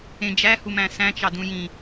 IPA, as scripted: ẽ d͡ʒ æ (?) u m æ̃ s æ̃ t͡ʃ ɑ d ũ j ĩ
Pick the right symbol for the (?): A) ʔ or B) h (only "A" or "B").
B